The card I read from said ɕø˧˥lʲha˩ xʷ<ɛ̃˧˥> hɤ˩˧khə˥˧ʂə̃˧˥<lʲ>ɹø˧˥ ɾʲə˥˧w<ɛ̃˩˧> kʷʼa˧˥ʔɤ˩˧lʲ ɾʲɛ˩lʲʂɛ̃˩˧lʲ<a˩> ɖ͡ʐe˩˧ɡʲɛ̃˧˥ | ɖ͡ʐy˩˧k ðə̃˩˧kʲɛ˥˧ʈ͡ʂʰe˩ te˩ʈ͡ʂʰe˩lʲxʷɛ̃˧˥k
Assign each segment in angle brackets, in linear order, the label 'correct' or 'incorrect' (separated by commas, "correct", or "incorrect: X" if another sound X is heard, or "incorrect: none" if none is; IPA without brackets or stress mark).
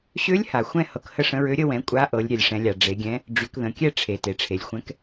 incorrect: ɛ̃˥˧, incorrect: none, correct, correct